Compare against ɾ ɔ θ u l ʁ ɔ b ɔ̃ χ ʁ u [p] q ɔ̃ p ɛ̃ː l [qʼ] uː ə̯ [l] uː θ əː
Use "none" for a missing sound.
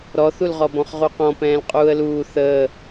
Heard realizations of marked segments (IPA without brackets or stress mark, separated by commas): none, qʼ, l